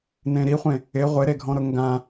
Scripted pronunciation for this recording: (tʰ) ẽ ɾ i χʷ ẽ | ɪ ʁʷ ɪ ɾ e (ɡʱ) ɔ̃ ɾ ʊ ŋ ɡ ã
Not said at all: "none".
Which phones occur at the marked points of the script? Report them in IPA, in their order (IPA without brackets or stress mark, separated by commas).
n, ɡʱ